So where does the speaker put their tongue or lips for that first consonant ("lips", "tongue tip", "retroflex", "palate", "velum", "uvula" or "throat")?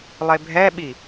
tongue tip